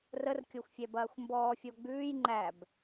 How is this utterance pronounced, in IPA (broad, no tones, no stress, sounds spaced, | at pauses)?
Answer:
r ə r kʲ o xʷ fʲ ɛ b ɐː xʷ m b ɔː fʲ o ɡ͡b ʉː j ŋ͡ǃ æ b